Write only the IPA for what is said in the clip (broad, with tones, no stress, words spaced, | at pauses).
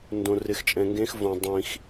ndõ˧rɪ˧xt͡ʃʼɛ̃˧ŋɡẽ˦˥x võ˧ dˤĩ˧x